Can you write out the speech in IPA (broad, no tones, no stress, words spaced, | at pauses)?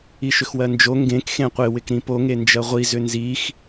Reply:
iʃʏxwɜnd͡ʒo ŋɡẽk xẽqʷɪ wɪkɾĩpo ŋend͡ʒɜʁʷi zʏnzix